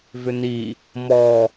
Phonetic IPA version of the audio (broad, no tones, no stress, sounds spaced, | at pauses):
v ʏ n i | m ɔ